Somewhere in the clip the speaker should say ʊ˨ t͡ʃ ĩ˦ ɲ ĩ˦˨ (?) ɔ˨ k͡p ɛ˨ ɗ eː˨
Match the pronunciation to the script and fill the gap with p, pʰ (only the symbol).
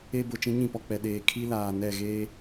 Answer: p